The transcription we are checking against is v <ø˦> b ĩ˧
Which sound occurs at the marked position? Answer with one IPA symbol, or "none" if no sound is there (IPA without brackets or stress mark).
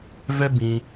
ɛ˦